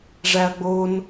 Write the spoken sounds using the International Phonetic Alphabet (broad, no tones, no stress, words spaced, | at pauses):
ʐæɐ̯ɡ͡bon